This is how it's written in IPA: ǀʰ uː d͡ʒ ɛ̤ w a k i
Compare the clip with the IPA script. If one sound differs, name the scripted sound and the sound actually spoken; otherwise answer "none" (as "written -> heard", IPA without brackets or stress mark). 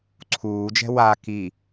none